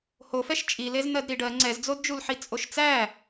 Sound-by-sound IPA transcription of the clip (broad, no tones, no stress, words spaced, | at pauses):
hofɛʃ t͡ʃʼilez n̪ɜdɾiɖɜ ŋ͡ǀɛzd͡zodd͡ʒulħi t͡sʼoʃt͡sæ